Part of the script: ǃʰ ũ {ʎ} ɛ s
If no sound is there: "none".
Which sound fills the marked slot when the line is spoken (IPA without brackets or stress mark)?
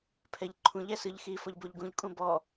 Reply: ʎ